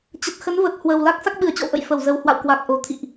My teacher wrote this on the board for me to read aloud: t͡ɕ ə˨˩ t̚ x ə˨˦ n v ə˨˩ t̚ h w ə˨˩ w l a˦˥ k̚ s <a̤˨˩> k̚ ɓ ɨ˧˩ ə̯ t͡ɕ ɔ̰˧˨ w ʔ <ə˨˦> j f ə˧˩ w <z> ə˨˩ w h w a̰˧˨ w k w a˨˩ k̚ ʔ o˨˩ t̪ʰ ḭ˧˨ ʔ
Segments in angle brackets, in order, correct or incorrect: incorrect: a˦˥, incorrect: ə̰˧˨, correct

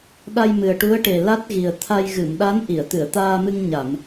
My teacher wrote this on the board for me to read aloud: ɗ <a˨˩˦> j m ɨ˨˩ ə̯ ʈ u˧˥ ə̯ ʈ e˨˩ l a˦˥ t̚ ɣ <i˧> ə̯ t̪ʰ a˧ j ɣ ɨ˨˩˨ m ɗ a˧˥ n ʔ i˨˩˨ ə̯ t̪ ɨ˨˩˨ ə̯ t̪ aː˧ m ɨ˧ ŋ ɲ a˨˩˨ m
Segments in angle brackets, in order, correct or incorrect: incorrect: a˧, incorrect: i˨˩

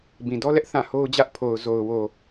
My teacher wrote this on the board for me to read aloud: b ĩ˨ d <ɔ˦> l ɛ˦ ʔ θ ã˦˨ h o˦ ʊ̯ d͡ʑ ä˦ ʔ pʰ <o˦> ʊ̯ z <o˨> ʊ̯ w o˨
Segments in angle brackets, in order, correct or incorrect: correct, incorrect: o˨, correct

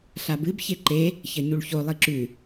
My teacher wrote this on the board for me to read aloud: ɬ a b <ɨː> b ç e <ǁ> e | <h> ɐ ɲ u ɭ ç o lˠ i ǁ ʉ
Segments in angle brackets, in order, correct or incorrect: incorrect: ɨ, incorrect: ǃ, incorrect: ç

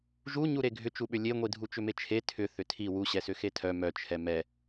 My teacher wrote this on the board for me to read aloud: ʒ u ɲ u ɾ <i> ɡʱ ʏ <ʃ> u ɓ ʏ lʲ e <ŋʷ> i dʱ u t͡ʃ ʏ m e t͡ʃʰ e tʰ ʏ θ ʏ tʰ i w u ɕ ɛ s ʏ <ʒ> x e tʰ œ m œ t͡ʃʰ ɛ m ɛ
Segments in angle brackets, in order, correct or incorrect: incorrect: e, incorrect: t͡ʃ, correct, incorrect: none

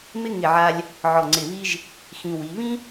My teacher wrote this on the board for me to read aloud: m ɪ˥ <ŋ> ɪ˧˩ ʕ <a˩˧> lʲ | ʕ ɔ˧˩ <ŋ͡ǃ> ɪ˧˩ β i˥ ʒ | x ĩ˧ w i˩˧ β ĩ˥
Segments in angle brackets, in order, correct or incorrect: correct, incorrect: a˧, incorrect: ŋ͡ǀ

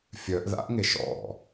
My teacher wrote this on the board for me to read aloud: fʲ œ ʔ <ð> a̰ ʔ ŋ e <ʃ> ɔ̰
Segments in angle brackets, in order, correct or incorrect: correct, correct

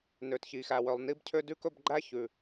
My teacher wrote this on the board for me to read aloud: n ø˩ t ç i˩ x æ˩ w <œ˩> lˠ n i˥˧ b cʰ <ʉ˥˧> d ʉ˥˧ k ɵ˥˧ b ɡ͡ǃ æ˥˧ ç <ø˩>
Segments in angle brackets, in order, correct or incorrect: correct, incorrect: ø˥˧, incorrect: ʉ˩

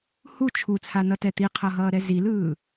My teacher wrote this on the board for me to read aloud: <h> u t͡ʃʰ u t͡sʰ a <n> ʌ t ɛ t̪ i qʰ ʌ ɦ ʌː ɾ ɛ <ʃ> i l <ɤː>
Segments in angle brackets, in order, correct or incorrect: correct, correct, incorrect: z, incorrect: ɯː

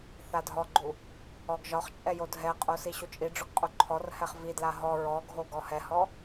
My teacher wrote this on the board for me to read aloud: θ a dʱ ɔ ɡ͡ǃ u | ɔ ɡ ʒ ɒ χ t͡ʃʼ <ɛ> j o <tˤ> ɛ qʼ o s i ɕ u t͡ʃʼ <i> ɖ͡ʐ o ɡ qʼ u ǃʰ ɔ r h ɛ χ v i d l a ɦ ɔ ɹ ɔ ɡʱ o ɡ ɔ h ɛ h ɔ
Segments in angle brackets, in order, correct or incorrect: correct, incorrect: dʱ, correct

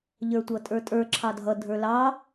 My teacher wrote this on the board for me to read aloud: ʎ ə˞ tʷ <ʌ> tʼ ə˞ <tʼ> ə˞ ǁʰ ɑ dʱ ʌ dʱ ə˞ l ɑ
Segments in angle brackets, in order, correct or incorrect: correct, correct

